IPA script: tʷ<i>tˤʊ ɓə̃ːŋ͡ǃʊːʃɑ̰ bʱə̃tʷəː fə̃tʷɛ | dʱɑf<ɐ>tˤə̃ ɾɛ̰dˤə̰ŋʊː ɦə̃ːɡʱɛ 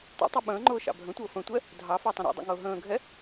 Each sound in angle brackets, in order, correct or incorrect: incorrect, incorrect

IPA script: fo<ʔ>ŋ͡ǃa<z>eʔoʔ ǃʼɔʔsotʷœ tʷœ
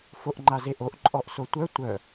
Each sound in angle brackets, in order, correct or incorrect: correct, correct

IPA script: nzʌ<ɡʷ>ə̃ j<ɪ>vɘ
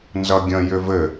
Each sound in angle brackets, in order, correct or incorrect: incorrect, incorrect

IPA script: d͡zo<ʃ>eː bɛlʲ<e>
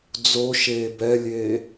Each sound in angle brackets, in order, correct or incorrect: correct, incorrect

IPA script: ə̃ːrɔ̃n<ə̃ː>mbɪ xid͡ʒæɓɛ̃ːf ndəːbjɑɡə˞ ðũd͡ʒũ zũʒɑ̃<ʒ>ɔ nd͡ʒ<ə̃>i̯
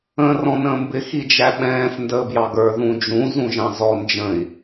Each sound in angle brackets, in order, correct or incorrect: correct, incorrect, correct

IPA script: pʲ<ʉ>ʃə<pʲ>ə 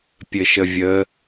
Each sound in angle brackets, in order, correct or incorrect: incorrect, incorrect

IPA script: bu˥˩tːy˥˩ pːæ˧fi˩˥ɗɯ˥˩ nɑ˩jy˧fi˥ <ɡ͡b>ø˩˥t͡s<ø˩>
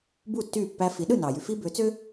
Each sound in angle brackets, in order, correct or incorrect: incorrect, incorrect

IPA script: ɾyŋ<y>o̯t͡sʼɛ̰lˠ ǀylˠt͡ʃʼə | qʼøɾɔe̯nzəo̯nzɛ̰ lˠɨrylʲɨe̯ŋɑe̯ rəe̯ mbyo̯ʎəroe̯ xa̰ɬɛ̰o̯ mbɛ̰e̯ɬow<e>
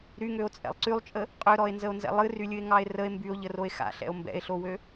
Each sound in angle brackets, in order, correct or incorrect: incorrect, incorrect

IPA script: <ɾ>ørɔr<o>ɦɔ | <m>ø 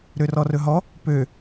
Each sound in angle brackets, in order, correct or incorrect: correct, incorrect, incorrect

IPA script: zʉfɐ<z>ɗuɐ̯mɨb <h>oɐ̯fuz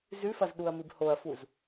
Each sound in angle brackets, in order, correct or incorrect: correct, correct

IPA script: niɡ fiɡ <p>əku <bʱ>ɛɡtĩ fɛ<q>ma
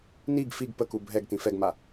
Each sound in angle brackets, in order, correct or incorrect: correct, correct, incorrect

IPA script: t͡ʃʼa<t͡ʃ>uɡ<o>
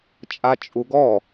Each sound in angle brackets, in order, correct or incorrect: incorrect, incorrect

